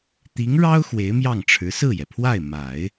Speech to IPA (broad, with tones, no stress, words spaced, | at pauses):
t̪i˧˥ŋɻɑ˥ʊ̯ xwe˧˥ɪ̯mjɑ˥˩ŋʈ͡ʂʰɻ̩˧˥ sɹ̩˥˩jɛ˩pʰwa˥˩ɪ̯ ma˨˩˦ɪ̯